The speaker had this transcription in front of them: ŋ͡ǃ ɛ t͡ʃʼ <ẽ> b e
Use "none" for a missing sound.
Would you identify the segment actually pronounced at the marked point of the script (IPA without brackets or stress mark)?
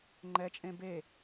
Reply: ẽ